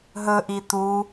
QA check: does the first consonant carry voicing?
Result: yes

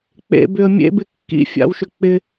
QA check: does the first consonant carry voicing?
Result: no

